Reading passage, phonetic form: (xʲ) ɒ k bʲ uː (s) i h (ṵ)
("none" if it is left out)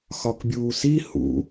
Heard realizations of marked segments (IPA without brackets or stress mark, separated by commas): x, s, ṵ